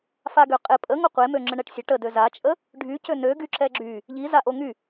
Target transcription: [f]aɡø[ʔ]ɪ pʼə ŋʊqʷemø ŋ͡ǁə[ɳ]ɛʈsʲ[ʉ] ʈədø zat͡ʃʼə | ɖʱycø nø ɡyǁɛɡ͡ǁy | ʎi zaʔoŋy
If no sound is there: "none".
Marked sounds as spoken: f, qʼ, ɳ, ə

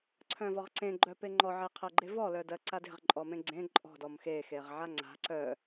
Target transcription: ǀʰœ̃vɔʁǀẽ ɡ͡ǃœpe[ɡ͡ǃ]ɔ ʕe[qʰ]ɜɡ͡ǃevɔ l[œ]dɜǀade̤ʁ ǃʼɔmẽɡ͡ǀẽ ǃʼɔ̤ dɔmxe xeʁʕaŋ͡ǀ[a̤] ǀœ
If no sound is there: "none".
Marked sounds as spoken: ŋ͡ǃ, qʰ, œ, a̤

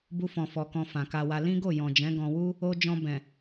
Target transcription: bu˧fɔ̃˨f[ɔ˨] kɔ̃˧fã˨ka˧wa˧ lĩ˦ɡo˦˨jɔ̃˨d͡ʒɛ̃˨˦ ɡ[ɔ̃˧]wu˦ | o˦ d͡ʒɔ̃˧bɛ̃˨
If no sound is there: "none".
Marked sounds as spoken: ɔ˨, ɔ̃˧

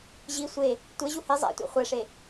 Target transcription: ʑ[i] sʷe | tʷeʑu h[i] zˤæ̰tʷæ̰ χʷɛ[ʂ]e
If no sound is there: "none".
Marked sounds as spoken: i, i, ʂ

